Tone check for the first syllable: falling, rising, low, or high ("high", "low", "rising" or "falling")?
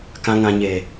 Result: low